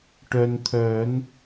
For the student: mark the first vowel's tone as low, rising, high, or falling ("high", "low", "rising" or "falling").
low